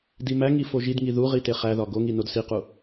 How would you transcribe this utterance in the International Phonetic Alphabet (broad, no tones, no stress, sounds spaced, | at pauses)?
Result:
d i m æ ŋ i f o ʒ i d ŋ i ð u ʁ i t e χ æ ð ɒ ɡ o ŋ i n o d s i q u